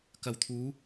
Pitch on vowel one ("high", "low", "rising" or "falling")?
low